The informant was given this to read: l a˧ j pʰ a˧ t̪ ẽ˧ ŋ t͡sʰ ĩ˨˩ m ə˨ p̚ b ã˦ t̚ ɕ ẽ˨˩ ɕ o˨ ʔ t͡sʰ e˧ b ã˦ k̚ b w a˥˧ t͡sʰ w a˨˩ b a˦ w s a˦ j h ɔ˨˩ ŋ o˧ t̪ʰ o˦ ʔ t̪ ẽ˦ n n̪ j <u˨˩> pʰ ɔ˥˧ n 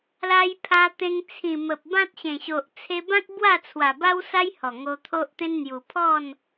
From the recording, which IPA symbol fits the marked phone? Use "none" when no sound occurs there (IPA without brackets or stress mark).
u˨˩